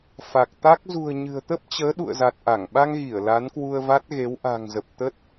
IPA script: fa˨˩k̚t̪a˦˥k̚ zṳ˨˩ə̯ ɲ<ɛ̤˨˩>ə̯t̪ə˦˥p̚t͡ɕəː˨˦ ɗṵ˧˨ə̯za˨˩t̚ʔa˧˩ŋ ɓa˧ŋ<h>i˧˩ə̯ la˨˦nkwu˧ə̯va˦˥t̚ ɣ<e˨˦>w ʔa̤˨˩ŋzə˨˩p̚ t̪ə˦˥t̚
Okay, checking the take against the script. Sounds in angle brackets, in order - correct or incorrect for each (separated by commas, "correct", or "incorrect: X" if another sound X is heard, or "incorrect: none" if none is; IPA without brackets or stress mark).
incorrect: ɨ̤˨˩, incorrect: ɣ, correct